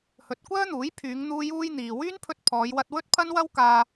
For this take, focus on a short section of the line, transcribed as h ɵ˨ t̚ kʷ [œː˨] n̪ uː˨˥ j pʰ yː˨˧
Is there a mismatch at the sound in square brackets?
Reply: yes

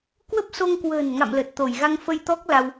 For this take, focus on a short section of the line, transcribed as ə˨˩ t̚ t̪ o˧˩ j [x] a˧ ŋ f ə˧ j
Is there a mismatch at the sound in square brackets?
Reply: yes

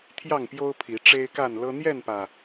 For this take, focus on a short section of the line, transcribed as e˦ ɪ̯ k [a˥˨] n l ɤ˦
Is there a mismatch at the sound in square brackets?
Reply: no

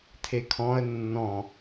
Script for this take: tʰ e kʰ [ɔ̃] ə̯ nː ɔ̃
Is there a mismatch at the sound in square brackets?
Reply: no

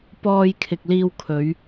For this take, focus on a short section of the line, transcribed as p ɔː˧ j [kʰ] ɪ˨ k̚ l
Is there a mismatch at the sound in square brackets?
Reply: no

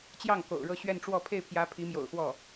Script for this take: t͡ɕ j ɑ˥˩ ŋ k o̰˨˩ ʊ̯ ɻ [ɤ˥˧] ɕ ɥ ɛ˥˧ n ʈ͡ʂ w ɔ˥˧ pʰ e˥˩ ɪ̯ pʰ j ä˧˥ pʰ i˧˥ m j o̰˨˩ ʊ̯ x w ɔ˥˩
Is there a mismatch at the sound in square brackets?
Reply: no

